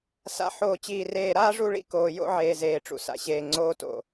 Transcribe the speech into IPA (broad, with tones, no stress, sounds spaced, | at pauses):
s a̰˨ ħ oː˨ t͡ɕ iː˨ r eː˨ ɾ aː˦ ʐ u˦˨ ɭ ḭ˦ k oː˨ j o̰˦ ʕ eː˨ z eː˨ ʈ͡ʂ ṵ˨ s a̰˨ ɕ eː˨ ŋ͡ǀ oː˦ t o̰˨